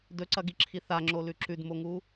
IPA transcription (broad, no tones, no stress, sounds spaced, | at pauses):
d ɵ ǀ ɐ ɡ i ǁʰ i θ a ŋ͡ǁ o l ʉ ǁ ʉ d m o ŋ u